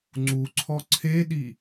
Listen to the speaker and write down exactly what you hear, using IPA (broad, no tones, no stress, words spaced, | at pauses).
ŋ͡ǀuǀʰɔ ǀʰeɗi